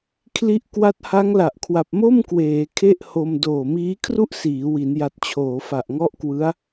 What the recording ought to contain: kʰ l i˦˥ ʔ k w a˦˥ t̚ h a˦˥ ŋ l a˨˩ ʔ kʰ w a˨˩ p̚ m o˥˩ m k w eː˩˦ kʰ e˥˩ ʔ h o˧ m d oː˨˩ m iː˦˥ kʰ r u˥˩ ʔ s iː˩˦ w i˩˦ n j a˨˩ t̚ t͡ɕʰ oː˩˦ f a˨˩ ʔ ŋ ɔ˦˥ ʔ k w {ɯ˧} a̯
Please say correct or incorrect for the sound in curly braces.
incorrect